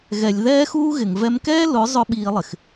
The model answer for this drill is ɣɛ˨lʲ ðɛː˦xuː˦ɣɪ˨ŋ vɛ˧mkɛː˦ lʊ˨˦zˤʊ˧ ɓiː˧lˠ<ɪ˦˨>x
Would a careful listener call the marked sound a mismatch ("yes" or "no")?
yes